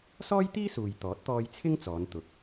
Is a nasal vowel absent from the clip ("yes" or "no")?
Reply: yes